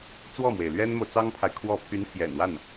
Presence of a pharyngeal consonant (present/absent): absent